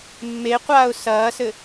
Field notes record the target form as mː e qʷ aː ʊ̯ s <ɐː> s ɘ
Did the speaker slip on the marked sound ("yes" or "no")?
no